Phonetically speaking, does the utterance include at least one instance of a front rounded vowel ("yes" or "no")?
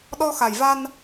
no